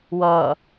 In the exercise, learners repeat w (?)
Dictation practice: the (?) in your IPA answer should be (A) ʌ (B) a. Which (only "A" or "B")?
A